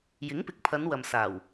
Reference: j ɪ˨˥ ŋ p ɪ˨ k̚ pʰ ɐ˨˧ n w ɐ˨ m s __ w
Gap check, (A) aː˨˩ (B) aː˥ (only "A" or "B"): A